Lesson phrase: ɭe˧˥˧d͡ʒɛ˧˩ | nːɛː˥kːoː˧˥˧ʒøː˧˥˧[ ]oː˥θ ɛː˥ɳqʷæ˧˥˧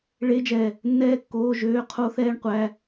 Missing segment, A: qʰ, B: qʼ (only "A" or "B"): A